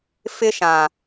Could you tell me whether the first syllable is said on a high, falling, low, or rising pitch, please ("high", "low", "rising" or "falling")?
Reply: high